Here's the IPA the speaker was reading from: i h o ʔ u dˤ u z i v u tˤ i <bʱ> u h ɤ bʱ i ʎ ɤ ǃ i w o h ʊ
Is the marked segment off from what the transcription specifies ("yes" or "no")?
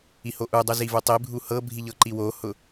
no